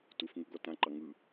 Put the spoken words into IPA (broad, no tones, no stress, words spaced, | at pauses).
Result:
tufŋu ɡɔtãǃɑ ŋɯ